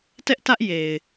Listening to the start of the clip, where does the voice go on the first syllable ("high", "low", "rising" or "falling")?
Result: high